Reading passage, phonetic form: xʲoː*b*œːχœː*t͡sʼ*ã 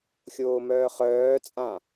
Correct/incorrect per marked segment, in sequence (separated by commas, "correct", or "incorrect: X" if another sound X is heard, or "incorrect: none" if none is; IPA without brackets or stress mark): incorrect: m, correct